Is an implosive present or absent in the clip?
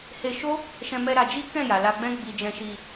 absent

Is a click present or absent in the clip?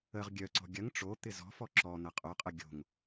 present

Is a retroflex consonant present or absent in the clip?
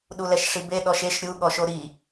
present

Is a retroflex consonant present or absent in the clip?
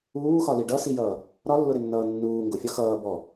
present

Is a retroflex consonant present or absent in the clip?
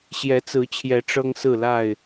present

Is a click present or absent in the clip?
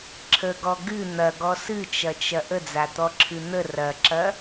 present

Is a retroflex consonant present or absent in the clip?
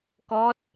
absent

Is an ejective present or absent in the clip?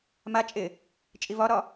present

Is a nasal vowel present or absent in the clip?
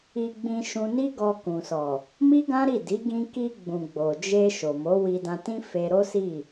present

